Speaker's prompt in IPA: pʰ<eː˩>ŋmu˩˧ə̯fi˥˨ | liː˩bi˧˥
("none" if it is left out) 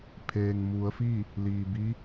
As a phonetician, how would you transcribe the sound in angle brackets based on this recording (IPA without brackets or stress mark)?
eː˩